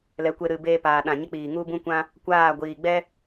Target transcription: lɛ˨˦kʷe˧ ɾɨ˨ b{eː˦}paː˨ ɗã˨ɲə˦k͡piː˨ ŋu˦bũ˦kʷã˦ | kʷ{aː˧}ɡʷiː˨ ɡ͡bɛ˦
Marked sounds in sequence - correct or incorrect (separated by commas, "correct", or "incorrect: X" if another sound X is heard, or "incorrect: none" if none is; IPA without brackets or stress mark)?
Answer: incorrect: eː˧, incorrect: aː˦˨